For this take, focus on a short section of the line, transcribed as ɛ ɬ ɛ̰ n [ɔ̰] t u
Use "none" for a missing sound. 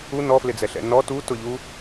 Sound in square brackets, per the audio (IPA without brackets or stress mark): ɔ